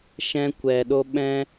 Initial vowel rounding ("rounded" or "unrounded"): unrounded